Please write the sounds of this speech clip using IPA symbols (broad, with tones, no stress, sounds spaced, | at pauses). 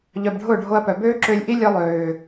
ʎ œ˧ b ɖʱ ʊː˦˨ ɖʱ o˧ ɐ̯ p œ˨ b øː˦ ǁ ø˧ lʲ ʔ i˦ lʲ œ˦ lˠ øː˨